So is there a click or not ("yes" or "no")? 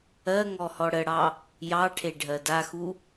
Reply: no